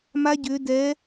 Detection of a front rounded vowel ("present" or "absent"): present